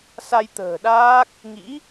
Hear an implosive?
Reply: yes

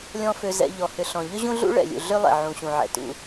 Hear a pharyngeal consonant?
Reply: yes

